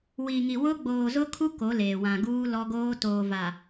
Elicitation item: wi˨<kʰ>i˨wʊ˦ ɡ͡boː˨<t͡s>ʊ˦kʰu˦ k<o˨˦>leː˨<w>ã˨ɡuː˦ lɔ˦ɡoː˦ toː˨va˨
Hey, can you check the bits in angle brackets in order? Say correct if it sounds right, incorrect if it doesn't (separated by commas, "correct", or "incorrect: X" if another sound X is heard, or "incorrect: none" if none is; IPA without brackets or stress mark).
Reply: incorrect: ŋ, incorrect: z, correct, correct